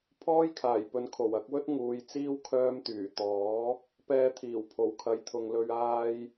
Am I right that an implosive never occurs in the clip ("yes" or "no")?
yes